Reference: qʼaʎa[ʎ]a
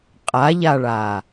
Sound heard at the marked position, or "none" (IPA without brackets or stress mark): ɭ